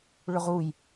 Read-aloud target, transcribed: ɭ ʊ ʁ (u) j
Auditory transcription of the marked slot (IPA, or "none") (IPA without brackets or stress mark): u